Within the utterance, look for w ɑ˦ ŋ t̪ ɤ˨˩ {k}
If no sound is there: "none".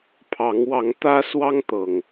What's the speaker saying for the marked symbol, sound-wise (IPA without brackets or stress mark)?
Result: ŋ